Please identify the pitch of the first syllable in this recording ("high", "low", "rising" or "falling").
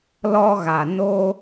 high